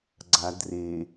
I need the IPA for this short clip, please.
ɡ͡ǀa dre

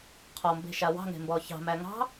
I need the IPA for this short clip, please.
qʰɔmbe̤ʃa wɑ̤ŋe̤mbɔ çɑ̤mæ ŋɑ̤

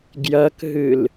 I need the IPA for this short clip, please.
ɡjɐkɦɨl

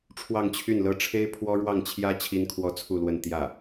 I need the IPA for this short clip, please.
ʈ͡ʂʰwɑ˥˧ŋt͡ɕʰy˥˩nlɤ˥ ʈ͡ʂʰe˥ɪ̯pʰwɔ˥ ɻwɑ˥˩ŋt͡ɕʰjä˥ t͡ɕʰi˥nkʰwɔ˥t͡sʰu˥˧lwə˥˧n t̪jä˥˩

